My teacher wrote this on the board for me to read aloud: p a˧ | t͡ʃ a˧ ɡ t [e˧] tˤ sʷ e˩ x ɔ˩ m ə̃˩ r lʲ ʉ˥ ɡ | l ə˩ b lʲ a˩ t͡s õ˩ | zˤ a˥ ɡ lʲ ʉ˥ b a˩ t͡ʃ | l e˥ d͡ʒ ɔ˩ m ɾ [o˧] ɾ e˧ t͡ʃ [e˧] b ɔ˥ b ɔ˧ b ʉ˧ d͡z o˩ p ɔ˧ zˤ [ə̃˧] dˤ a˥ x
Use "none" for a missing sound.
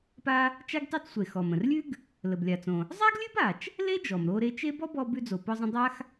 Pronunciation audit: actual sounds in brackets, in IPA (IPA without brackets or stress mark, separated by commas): e˧, o˧, e˥, ə̃˧